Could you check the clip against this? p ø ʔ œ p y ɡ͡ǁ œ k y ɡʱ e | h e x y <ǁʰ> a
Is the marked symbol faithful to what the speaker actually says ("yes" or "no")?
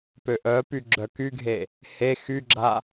no